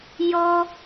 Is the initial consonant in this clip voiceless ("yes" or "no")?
no